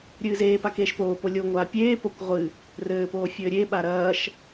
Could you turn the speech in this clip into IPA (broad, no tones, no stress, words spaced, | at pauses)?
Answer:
ɾʲɨːzeːpa keːʃpoːpo lʲoŋʷaː pʲeːpokʷ ʁʷɨ | rɘːpoː fʲɘːɾʲeɓa ɾɐːʃ